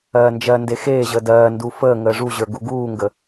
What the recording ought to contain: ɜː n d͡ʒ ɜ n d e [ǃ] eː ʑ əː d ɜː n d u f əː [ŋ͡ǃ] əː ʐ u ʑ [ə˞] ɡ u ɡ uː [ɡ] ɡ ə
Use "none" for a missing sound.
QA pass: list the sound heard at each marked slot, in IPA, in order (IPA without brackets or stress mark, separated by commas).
x, ŋ, ə˞, ŋ